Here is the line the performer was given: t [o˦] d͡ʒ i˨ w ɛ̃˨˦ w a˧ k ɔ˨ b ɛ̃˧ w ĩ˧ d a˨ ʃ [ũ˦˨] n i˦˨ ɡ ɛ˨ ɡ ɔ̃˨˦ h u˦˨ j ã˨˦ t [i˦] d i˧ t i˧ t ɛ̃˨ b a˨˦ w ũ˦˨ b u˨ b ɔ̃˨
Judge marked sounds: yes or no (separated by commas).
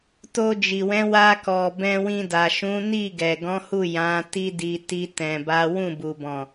no, no, yes